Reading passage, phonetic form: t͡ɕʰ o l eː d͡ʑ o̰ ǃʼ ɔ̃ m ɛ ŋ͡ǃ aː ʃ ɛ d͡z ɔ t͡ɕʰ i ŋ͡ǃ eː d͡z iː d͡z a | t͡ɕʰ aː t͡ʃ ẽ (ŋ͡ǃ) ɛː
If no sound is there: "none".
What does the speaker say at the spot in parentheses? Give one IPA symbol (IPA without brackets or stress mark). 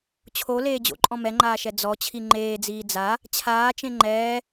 ŋ͡ǃ